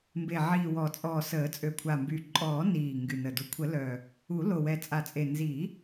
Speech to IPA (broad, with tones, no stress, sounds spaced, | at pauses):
m b e˨˩ ʕ iː˨˩ w ɔ˨˩˦ t͡sʼ ɔː˨˩ s əː˨˩˦ t͡sʼ ø˨˩ kʷʰ a˨˩ m b y˨˩ ǃʼ ɔː˨˩˦ n iː˨˩ ŋ ɡ y˨˩ n ə˨˩ d u˨˩ kʷʰ ə˨˩˦ l œ˨˩ | u˨˩˦ l o˨˩ w ɛ˨˩ t͡sʼ a˨˩˦ t͡sʼ e˨˩ n z i˨˩˦